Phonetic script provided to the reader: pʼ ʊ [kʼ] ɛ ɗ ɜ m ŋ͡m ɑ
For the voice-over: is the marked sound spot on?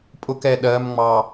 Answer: no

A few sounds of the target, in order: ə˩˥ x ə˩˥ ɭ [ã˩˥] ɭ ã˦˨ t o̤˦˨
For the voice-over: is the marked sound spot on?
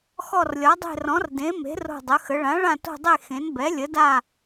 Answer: yes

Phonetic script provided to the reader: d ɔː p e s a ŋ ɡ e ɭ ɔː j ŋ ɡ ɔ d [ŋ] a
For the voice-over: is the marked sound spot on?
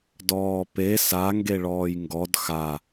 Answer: no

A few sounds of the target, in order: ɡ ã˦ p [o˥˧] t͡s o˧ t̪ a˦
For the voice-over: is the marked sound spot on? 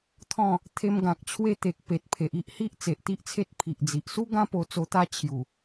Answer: no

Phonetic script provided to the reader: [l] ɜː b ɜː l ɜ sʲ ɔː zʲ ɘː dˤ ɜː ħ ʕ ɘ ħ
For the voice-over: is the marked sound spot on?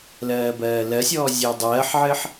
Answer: yes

